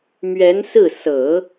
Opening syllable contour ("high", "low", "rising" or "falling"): rising